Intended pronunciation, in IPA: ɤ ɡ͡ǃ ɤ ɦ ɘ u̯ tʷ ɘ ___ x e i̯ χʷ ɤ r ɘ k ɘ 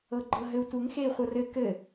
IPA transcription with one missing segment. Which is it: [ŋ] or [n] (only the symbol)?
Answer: ŋ